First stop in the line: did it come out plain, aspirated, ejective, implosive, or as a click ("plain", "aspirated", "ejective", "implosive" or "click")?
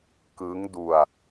plain